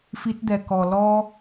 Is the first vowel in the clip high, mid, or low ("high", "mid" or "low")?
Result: high